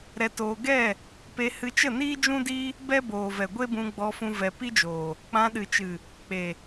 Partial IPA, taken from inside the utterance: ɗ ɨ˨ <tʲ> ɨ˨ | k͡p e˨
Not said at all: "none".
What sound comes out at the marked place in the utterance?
t͡ʃ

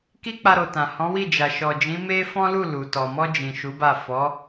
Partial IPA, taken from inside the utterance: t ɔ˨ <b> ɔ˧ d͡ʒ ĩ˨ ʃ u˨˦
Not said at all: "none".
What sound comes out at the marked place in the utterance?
m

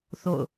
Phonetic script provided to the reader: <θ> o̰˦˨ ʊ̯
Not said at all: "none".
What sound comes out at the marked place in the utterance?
θ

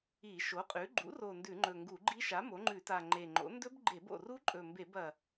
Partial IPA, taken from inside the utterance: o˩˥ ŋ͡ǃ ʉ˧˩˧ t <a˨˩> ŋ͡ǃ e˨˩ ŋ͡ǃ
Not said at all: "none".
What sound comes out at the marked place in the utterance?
a˨˩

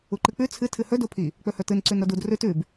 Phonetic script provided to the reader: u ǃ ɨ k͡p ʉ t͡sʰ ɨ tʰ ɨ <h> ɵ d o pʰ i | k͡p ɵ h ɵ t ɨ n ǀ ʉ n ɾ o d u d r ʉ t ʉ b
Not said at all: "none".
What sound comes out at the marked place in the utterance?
h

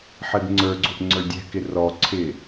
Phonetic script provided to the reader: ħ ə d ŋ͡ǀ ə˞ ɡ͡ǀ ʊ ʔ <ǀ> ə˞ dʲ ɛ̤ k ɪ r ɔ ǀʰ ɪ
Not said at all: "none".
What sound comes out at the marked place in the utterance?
ŋ͡ǀ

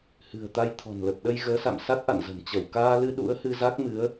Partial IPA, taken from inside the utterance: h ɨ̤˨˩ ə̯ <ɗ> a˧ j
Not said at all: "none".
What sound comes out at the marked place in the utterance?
t̪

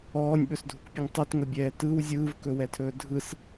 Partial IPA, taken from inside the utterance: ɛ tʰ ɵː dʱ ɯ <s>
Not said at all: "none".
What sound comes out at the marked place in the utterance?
s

